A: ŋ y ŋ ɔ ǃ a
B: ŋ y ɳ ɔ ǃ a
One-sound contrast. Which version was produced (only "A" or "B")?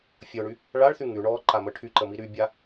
B